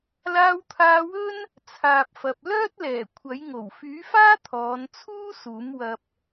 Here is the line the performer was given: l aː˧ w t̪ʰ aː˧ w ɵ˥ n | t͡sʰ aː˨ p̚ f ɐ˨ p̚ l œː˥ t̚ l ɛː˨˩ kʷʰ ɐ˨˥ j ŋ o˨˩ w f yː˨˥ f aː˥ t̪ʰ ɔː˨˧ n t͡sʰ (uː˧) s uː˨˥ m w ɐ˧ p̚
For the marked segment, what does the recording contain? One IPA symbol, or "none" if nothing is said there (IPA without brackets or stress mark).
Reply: uː˥